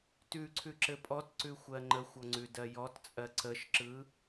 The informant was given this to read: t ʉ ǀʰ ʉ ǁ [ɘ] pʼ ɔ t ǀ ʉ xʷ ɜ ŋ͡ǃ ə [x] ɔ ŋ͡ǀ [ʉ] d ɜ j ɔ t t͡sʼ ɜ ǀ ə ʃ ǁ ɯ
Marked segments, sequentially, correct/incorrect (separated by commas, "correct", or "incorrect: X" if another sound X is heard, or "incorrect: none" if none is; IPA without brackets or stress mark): correct, incorrect: xʷ, correct